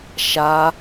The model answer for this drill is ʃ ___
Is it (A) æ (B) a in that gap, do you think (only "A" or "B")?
B